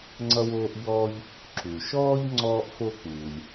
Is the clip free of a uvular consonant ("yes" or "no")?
yes